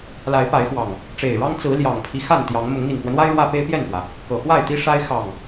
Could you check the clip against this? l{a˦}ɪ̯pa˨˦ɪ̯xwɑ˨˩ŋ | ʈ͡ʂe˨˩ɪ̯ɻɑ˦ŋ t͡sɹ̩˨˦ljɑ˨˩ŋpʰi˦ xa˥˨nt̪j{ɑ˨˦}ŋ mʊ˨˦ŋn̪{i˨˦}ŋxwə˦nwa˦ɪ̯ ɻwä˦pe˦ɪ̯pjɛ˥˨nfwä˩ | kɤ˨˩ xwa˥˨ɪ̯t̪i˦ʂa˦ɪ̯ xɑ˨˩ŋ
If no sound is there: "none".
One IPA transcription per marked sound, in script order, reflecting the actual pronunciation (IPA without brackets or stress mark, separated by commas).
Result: a˨˦, ɑ˨˦, i˨˩